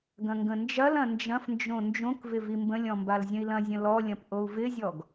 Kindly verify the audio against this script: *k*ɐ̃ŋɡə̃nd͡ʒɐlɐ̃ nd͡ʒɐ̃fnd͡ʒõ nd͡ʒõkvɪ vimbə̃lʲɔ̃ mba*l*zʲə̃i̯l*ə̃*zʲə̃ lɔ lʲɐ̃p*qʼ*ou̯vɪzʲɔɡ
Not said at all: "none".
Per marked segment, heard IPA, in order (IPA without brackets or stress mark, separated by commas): ɡ, l, ɐ̃, ʔ